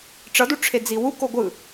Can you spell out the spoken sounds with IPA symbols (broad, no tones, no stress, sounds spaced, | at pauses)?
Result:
ʈ͡ʂ ʌ d u ʈ͡ʂʰ e d͡z i w u k o ɡʷ ɯ